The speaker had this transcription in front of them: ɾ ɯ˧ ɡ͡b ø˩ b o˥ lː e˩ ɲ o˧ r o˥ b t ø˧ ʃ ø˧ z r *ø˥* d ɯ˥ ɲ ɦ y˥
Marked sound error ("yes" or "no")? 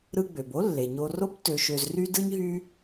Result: yes